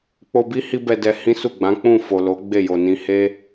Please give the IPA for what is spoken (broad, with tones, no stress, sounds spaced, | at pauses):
k͡p o˧ b i˦ h i˦ b ɛ˧ d ɛ˧ h ĩ˦ s u˦˨ ɡ͡b ã˨˦ k͡p ũ˦˨ f o˨ l o˨˦ ɡ͡b e˦˨ j o˨ n ĩ˧ h e˦